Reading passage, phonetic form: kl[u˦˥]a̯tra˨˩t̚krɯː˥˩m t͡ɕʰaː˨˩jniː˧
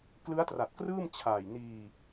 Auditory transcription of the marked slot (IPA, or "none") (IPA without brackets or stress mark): ɯ˦˥